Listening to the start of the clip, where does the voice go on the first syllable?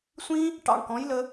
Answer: high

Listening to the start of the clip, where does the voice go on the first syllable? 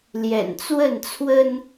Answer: low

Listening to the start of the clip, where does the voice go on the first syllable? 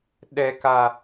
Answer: low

